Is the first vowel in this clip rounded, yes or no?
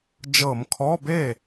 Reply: no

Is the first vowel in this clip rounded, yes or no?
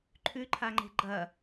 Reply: yes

